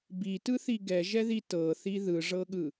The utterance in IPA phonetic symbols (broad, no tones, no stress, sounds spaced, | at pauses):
b i t ɯ θ i ɡ ɛ ʒ ɛ ð i t ɤ θ i ð ɯ ʐ ɤ ɠ ɯ